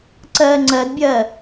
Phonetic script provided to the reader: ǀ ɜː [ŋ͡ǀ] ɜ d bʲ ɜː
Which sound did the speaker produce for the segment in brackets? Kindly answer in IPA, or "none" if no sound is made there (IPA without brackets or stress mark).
ŋ͡ǀ